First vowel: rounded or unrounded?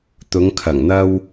rounded